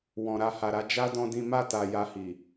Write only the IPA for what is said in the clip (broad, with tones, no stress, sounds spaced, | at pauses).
w ɔ̃˨ ɾ a˧ h a˨ ɾ a˧ d͡ʒ a˦ d ɔ̃˦ d ĩ˦ m a˦˨ t a˨ j a˧ h i˨